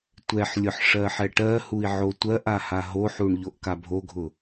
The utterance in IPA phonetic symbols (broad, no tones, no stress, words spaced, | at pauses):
tʷɛħlʲʊħ ʂɜħɛʈɜhui̯ ʕotʷɜʔa haɦoħuɳ ʎoʔkabʱoɡʱʊ